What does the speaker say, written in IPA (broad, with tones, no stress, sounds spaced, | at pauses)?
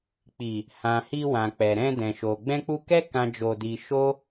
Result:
k͡p i˨ | h ã˨ h i˧ w ã˨ k͡p ɛ˨ ɾ ɛ̃˧ d ɛ̃˨ ʃ o˨ ɡ͡b ɛ̃˧ k͡p u˧ k ɛ˦ k ã˦ d͡ʒ o˧ d i˧ ʃ o˦